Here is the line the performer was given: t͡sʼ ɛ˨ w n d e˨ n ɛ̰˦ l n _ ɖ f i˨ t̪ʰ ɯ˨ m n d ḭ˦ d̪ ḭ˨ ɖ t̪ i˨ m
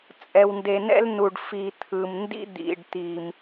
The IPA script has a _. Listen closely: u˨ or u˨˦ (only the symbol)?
u˨